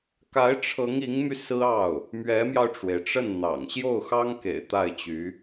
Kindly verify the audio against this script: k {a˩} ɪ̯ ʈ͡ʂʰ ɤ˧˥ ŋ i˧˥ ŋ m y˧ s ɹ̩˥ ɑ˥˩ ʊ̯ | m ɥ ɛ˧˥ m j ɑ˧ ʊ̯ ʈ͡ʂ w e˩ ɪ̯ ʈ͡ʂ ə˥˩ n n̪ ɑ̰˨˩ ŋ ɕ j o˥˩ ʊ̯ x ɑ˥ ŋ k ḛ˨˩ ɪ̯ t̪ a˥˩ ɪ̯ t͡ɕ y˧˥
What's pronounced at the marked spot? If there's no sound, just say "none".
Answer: a˧˥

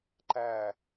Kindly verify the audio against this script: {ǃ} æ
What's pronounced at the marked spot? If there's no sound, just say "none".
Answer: ǃ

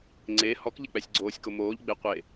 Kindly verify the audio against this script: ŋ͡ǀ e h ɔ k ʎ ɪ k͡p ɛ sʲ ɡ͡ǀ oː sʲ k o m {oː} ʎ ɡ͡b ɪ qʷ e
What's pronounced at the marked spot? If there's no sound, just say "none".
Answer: oː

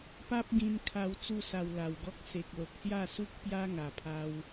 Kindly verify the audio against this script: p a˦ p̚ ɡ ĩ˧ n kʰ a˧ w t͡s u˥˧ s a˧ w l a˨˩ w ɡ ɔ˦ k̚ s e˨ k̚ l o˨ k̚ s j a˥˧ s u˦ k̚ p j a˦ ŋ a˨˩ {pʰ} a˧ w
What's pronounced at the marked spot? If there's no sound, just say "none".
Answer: pʰ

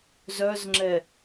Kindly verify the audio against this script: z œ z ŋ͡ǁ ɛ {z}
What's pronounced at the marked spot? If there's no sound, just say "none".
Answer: none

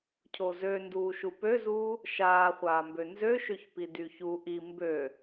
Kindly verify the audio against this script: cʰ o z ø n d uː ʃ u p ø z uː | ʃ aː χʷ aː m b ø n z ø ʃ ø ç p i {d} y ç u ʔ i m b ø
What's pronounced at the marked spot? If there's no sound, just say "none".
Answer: d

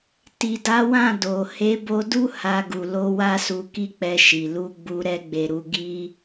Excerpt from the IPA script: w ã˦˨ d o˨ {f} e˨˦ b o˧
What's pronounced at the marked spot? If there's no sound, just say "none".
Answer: h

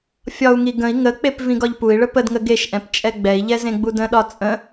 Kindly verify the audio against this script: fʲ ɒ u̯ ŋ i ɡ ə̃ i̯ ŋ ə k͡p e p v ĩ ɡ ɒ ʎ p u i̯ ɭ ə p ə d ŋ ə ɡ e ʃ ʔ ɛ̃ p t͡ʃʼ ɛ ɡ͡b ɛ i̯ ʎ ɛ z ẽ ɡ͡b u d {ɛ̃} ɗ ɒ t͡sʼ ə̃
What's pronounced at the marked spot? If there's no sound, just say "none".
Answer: ə̃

